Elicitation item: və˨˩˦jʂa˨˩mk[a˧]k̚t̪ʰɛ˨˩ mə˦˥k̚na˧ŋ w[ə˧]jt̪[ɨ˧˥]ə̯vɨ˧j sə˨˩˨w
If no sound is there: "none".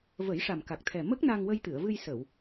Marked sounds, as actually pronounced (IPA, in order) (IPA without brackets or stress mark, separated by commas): a˨˩, ə˧, ɨ˨˩˨